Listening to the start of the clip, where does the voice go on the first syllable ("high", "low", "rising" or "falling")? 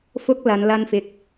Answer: high